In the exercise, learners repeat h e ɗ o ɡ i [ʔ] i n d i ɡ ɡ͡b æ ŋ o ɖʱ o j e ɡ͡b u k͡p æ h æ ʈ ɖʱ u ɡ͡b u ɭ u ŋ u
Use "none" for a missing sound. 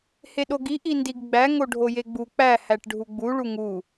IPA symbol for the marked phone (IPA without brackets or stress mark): ʔ